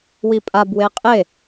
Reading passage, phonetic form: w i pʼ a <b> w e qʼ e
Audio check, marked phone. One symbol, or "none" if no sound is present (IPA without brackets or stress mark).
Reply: b